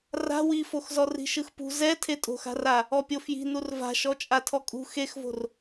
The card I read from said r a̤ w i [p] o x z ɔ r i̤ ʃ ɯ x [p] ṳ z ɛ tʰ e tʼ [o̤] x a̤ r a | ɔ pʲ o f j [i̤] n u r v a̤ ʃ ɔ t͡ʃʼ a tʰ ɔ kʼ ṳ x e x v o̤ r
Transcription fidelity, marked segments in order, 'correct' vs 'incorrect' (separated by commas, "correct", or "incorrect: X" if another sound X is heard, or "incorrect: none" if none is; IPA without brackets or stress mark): incorrect: f, correct, correct, correct